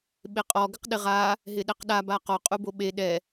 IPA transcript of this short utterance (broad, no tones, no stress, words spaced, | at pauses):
ɓeqʼɔ ɡɪqɗɪʁa | ɦɪɗɛqɗa baqɔ qʼuboɓe ɗɛ